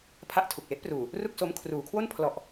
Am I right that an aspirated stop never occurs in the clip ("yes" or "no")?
no